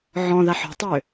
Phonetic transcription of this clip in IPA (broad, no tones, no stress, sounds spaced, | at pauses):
ʕ ɔ̃ ð a ħ ɔ̤ tˤ ø